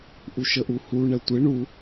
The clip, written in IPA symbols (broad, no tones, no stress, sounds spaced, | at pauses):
ʔ u ʃ ə ʔ u h u ɳ ɛ tʷ ɪ ɳ u